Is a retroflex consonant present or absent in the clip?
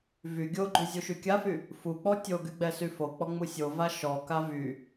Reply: absent